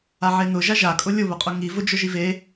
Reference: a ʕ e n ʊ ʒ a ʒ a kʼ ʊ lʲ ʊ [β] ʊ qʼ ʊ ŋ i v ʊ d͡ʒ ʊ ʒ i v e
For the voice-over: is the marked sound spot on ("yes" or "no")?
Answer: yes